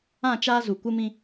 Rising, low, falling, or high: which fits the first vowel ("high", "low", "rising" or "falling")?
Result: falling